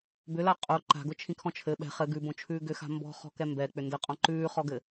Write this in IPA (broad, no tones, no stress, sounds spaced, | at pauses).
b ʏ l a qʼ o ǃ a̤ ɡ ʊ t͡ʃʰ ĩ kʰ ɔ̃ t͡ʃʰ ɘ ɓ ɛ̤ χ ɘ ɡ ʉ b õ t͡ʃʰ ʉː ɡ ʏ x a̤ m b ɔ̤ χ ɔ̤ k ɛ m b ɛ k͡p ʏ n d ɘ qʼ ɔ̃ ǃ ʉː χ ɔ ɡ ɘ